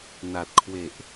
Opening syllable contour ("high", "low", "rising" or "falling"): low